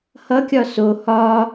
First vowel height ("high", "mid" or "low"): mid